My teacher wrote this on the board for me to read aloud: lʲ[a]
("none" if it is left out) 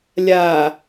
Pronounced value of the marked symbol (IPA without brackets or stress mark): a